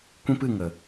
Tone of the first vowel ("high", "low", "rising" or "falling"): high